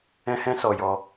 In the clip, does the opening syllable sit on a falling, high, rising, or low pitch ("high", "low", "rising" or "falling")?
high